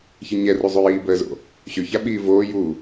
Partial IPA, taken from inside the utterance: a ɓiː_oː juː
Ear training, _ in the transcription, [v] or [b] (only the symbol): v